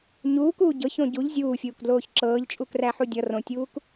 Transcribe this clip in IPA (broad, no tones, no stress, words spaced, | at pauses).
ɲuːkuː ɟɤçõ ɟuʎ zʲuːfʲuːkdloːç ǁɤːʎt͡ʃʼukræħu dʲʌ rõtʲuːk